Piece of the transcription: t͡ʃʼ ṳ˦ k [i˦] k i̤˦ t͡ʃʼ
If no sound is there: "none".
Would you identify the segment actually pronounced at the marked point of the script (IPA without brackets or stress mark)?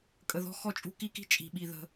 i˦